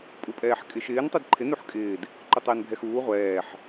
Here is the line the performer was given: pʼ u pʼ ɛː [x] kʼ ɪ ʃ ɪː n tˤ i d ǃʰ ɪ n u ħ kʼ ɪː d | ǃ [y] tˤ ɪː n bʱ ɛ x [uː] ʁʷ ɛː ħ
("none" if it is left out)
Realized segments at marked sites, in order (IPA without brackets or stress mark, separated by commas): ħ, ʏ, uː